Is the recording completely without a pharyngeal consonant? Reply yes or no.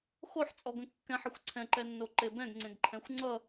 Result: no